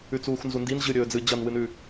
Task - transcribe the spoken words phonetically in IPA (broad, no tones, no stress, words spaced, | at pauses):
ʉt͡suːxnzundin ʑɨɾʲɵː d͡zɨ d͡ʑɐnwɨnʉ